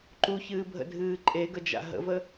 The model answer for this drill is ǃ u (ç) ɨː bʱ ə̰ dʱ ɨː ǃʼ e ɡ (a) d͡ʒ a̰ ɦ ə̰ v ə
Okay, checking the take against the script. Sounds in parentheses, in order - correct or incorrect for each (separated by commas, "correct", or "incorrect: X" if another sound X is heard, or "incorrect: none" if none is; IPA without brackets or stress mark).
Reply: correct, incorrect: ə